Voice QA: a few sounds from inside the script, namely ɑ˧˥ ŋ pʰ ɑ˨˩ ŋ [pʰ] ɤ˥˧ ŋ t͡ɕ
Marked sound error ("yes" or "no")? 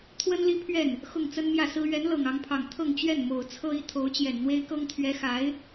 yes